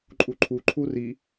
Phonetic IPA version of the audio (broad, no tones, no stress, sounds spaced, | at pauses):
ǃʼ u ǃʰ u ǃʰ u r i